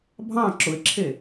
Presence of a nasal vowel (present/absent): present